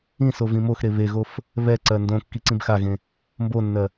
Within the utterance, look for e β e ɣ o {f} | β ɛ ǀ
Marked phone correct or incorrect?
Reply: correct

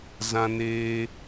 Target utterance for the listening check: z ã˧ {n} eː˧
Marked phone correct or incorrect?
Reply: correct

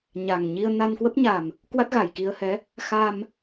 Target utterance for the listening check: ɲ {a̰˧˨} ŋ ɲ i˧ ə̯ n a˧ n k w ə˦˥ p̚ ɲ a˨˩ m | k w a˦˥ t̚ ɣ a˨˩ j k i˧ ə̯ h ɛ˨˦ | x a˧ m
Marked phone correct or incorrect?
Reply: incorrect: a˨˩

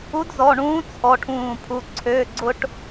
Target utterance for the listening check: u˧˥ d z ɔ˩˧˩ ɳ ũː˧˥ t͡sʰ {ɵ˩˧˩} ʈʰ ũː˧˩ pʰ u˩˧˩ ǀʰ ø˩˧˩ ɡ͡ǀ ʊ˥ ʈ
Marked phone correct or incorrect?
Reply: incorrect: ɔ˩˧˩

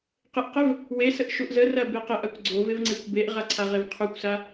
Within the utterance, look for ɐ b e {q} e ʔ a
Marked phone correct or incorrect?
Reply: correct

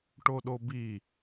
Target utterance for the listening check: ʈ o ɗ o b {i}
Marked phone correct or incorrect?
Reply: correct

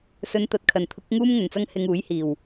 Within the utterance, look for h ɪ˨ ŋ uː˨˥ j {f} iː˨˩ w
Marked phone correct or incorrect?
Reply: incorrect: h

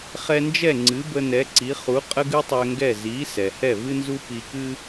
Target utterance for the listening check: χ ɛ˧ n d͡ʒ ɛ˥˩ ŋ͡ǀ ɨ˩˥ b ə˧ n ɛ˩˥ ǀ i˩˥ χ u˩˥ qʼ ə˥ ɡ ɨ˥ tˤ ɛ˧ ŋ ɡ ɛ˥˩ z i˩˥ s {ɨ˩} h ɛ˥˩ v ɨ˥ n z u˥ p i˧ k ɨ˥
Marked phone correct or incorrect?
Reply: incorrect: ɛ˩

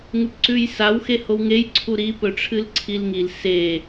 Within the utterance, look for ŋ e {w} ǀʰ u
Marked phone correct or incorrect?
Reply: incorrect: j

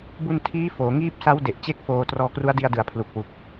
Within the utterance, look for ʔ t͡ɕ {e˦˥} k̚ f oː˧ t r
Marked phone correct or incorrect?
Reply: incorrect: e˥˩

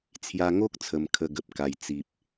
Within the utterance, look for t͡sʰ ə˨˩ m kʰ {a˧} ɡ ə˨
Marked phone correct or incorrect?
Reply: incorrect: ə˧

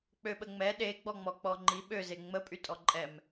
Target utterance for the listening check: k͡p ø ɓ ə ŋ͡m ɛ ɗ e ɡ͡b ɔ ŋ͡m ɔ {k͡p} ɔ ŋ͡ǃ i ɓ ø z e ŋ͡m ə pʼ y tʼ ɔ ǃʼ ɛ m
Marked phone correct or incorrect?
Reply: correct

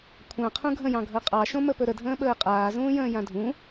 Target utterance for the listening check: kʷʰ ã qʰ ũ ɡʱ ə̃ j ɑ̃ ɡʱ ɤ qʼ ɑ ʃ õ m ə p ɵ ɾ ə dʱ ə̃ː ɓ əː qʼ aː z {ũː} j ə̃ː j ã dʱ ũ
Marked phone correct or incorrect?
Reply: correct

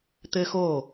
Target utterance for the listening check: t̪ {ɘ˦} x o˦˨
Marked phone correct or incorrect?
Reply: correct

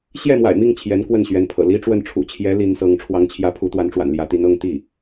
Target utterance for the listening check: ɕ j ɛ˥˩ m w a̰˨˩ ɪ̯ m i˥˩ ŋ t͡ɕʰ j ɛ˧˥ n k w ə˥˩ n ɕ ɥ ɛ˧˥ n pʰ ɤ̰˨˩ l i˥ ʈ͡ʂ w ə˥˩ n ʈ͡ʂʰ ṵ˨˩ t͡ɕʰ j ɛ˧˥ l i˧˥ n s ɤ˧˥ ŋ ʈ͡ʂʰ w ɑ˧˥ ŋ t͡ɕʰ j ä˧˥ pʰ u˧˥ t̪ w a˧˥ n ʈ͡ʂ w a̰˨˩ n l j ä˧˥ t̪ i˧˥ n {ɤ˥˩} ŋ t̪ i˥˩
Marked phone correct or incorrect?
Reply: incorrect: ɤ˧˥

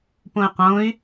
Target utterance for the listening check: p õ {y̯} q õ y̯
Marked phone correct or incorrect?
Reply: correct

